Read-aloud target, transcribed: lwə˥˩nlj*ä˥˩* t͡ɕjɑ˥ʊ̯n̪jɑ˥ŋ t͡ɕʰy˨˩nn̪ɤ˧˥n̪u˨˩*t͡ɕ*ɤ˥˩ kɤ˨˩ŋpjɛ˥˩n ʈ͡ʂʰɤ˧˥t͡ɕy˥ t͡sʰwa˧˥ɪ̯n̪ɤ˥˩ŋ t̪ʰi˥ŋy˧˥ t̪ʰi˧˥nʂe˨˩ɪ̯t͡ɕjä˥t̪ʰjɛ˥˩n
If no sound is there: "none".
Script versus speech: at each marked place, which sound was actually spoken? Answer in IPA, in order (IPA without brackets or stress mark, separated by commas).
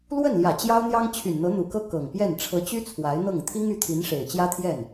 ä˨˩, k